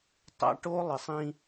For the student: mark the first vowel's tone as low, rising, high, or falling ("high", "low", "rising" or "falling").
high